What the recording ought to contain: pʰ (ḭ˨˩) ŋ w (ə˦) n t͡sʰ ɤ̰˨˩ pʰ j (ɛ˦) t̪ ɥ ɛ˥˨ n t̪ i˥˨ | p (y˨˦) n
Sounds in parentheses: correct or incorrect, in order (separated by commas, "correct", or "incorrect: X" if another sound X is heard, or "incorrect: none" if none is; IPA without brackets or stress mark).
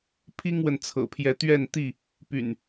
incorrect: i˦, incorrect: ə˨, incorrect: ɛ˨˦, incorrect: y̰˨˩